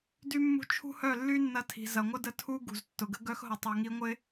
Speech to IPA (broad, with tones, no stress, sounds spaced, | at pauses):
d y˦ mː ṳ˦ t͡ʃʰ ṳ˦ h œ˦˨ lː y˦ nː ɐ˧ tʰ i̤˨ z ɐ˨ ŋʷ ə˦ d ə˧ tʰ u˦ ɡ ṳ˨ z tː ʊ˨ ɡ ə˦ ɡ œ˦ x ɦ ʊ˧ tˤ o˧ ŋ i˦ ŋʷ ɪ˦